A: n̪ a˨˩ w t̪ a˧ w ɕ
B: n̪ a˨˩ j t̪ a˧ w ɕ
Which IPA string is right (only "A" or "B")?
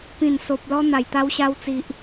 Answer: B